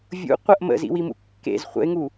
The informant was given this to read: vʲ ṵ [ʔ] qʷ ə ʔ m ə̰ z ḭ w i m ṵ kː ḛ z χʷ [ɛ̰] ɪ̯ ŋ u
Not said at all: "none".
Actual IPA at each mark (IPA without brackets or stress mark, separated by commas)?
none, ə̰